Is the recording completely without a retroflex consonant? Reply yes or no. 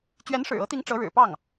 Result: no